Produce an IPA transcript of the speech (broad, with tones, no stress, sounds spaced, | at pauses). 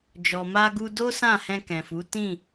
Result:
d͡ʒ ɔ˨ m a˧ ɡ u˧ d o˦ s ã˦˨ h ɛ̃˧ k ɛ̃˨ f u˨˦ t ĩ˦˨